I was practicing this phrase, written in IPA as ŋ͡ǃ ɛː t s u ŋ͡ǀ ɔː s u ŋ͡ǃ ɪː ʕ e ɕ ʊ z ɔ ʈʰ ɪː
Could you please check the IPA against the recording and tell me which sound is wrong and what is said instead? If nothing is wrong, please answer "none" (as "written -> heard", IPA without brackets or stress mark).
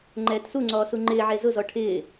ɕ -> z